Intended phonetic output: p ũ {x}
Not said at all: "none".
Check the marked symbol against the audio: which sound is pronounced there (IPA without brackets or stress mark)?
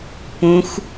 x